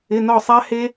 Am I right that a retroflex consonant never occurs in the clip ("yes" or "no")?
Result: yes